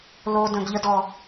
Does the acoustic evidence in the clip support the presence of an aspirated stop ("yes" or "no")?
no